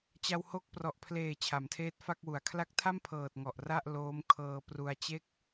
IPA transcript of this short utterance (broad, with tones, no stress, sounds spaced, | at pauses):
t͡ɕ a˧ w h o˦˥ k̚ p r ɔ˨˩ ʔ pʰ l eː˨˩ t͡ɕʰ a˩˦ m tʰ eː˦˥ t̚ f a˥˩ k̚ w u˨˩ a̯ kʰ l a˦˥ k̚ tʰ a˥˩ m pʰ ɤː˨˩ t̚ ŋ ɔ˨˩ ʔ r a˥˩ ʔ l oː˦˥ m kʰ ɤː˧ p r u˧ a̯ t͡ɕ e˦˥ k̚